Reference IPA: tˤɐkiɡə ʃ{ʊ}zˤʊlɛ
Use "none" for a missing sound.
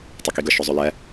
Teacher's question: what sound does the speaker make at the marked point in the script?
ʊ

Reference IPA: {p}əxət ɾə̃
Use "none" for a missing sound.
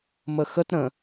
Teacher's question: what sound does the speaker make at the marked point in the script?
m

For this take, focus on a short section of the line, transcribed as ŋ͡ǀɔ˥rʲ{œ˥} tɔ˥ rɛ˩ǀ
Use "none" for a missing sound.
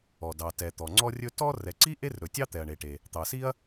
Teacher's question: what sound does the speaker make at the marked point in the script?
ɵ˥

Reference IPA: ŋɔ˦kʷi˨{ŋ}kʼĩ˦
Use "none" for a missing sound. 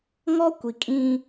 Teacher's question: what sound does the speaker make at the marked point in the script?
none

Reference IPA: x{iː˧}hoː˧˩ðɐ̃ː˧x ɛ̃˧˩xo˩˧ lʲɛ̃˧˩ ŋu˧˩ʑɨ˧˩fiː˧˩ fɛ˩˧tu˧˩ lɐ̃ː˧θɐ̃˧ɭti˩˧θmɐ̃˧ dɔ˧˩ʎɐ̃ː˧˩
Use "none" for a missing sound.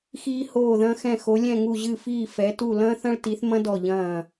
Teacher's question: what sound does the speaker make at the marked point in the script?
iː˧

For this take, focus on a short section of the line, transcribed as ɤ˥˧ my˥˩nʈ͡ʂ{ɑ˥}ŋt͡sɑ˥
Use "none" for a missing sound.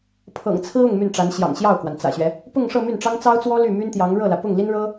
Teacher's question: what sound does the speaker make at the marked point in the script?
ɑ˥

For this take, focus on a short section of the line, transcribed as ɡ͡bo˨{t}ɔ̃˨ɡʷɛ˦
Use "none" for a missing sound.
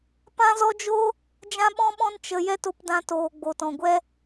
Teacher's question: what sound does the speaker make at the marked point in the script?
t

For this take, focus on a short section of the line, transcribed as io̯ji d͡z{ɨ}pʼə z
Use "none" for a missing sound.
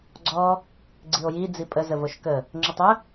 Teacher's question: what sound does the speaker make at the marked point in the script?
i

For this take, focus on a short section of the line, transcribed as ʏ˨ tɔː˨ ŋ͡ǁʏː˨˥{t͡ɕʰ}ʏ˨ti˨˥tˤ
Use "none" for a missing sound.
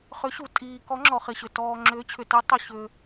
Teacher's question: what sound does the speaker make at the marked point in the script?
t͡ɕʰ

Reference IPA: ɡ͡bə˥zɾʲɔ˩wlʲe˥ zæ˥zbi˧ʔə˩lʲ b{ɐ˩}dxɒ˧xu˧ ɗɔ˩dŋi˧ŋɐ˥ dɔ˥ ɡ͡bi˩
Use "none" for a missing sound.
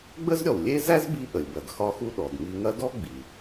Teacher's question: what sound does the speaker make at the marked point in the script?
ɐ˩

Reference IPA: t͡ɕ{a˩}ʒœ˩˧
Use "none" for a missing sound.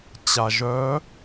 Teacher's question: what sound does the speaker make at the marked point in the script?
a˩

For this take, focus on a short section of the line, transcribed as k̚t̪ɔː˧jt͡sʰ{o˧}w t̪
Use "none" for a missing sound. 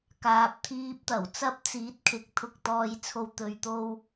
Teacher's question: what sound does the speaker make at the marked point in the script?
o˧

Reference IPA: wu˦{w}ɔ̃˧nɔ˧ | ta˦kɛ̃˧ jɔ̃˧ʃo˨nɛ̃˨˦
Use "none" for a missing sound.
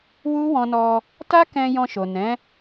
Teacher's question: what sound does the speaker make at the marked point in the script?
w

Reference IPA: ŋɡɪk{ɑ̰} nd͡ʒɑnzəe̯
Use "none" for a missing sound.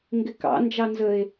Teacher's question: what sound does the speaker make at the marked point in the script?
ɑ̰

